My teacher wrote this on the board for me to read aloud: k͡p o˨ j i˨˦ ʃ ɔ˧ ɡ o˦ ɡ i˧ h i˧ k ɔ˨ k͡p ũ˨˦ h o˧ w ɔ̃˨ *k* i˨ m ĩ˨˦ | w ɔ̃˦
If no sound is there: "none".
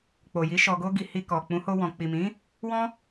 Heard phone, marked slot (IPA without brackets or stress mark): k͡p